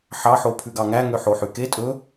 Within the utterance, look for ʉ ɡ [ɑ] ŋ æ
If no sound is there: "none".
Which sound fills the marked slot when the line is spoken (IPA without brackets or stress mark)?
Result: ɑ